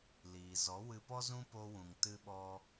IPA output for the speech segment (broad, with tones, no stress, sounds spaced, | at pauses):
l iː˨ z ɔ˨˦ w ɨ˧ p ɔ˦ z ũ˦ p o˧ w ũ˨ ŋ t ɨ˧ ɓ ɔ˧